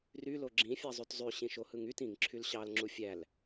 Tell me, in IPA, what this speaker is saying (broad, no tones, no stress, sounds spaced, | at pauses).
r y l o ɡ͡ǁ ĩ fʲ ɑ zˤ y t zˤ y ɕ ĩ ʃ o h ɯ ŋ y t ĩ ŋ ǁʰ y l ɕ ɑ l ŋ͡ǁ u fʲ æ l